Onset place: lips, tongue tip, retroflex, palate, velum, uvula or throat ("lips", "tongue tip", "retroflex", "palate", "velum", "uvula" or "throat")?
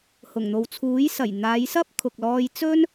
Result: throat